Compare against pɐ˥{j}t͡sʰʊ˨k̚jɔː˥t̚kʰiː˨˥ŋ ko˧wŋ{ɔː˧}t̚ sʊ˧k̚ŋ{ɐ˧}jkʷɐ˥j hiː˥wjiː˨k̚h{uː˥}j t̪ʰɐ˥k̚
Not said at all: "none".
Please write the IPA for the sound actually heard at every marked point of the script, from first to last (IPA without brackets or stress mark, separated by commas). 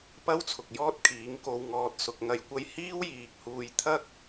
w, ɔː˧, ɐ˧, uː˧